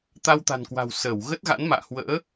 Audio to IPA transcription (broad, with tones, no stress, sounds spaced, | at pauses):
t̪ a˧ w t̪ a̤˨˩ n k w a̤˨˩ w s ə˧˩ w ɣ ə˦˥ t̚ ɣ a̰˧˥ n m a̰ː˧˨ h w ə̰ː˧˥